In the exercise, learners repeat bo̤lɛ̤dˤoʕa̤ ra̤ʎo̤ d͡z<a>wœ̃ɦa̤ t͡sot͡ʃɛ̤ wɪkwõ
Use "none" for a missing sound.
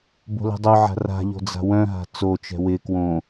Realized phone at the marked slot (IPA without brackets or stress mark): a̤